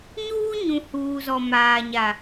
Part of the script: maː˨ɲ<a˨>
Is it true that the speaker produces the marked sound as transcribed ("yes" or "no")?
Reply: yes